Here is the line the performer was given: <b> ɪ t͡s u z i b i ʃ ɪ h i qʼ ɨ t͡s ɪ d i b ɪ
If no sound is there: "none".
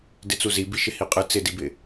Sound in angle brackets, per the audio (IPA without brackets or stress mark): d